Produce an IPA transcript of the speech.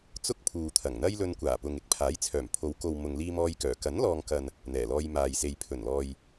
t͡s ʊ˥ k̚ pʰ uː˨ t̪ʰ ɐ˨˩ ŋ n̪ ɐ˥ j l ɵ˧ n kʷ aː˨˩ p ʊ˨ ŋ ɪ˨˥ k̚ pʰ aː˨˥ j t͡sʰ œː˨˩ m pʰ o˨˧ w k o˨ w m ʊ˨ ŋ l iː˧ m ɔː˧ j k œː˨˩ k ɐ˨˥ n l ɔː˨ ŋ k ɐ˨ n | n̪ ɛː˨˩ l ɔː˧ j m aː˨ j s e˨ j pʰ ɵ˨˩ n l ɔː˨ j

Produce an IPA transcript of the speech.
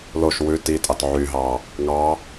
l o ʃ w ʉ t i tʼ ɑ t ʕ y ɦ ɑ | ŋ ɑ

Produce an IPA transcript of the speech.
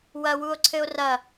w ɐ w u o̯ ǀʰ ɘ o̯ r ɐ

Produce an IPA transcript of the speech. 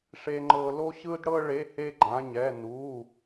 ʂ e˥ ŋ͡ǃ ɤ˥ l o˥ ɕ ɯ˥ d ɽ ɤ˥ ɭ e˧˥˧ h e˥ ɡ͡ǃ ã˧˥˧ ɲ ɛ˧˥˧ n u˧˥˧

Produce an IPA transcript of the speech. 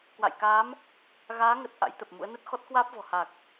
k w a̰˧˨ j k aː˨˦ m | ɣ aː˨˦ ŋ ə˨˩ t̚ ʔ a̰˧˥ j t̪ ə˨˩ p̚ m ṵ˧˥ ə̯ n ə˦˥ t̚ x ɔ˦˥ t̚ k w aː˦˥ p̚ v ɔ̤˨˩ h a˨˩ k̚

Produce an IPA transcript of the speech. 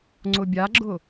ŋ͡ǀ ʊ bʲ a ɡ͡ǁ ʊ

